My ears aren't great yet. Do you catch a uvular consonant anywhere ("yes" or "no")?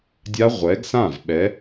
yes